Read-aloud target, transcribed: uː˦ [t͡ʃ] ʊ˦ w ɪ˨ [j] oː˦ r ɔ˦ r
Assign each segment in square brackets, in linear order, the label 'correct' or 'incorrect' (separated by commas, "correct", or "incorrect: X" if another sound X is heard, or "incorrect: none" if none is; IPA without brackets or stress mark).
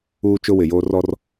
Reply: correct, correct